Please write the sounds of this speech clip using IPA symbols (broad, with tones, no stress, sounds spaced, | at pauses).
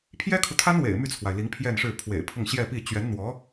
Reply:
pʰ j ɛ˥ kʰ u˨ t̪ʰ a˥ n w ḛ˨˩ ɪ̯ m y˥˩ t͡sʰ w a˩ ɪ̯ l i˧˥ ŋ pʰ j ɛ˥˧ n ʂ ɻ̩˥˩ pʰ w ḛ˨˩ ɪ̯ pʰ ʊ˥˧ ŋ ɕ j ɛ˥˧ p i˥˩ t͡ɕ ɥ ɛ˧˥ n n̪ w ɔ˧˥